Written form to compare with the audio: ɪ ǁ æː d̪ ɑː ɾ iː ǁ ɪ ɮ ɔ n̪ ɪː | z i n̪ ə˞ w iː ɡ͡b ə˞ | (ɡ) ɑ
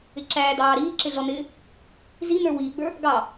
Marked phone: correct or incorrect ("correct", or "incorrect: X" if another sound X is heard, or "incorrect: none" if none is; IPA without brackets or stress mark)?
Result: correct